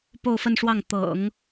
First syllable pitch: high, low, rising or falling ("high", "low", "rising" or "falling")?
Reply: falling